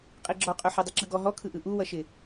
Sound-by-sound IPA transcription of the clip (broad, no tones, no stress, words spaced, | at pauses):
qʼiɡ͡ǁɔqʼø ħødˤiǁɯɡɔ ɦɔkʰɯ ʔɯʔuwʌʃɪ